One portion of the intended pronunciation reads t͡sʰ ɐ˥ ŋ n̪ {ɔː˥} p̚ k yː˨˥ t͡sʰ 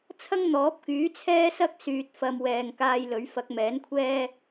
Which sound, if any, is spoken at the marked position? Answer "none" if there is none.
ɔː˨˥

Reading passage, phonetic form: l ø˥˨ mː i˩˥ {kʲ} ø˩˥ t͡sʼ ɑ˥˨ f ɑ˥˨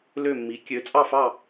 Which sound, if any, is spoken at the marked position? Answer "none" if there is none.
kʲ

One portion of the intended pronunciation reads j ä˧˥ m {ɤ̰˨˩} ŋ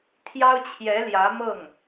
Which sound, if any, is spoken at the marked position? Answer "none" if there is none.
ɤ˥˩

